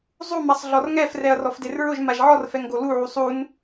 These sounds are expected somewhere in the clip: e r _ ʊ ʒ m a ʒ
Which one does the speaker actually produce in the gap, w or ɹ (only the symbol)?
ɹ